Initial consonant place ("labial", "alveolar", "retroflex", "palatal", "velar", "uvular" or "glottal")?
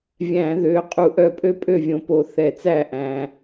labial